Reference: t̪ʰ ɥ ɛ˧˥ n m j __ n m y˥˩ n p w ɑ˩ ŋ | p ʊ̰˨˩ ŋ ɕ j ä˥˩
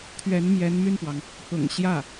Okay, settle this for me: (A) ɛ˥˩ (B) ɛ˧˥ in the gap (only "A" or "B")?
B